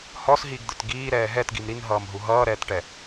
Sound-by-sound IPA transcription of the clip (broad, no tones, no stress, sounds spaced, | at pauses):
h ɔ s ɦ iː ɡ d̪ ə˞ t ɡ iː ɾ ɛː ɦ ɛ t ɡ i m ɾ i n ɦ ʌː m ɦ u ɦ ʌː ɾ ɛː t ʈ ɛ